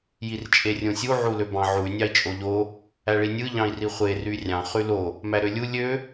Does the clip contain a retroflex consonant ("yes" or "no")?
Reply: yes